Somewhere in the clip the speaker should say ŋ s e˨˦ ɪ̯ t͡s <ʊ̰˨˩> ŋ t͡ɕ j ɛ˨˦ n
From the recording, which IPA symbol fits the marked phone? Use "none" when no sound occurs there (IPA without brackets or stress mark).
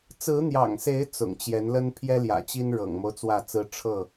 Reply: ʊ̰˨˩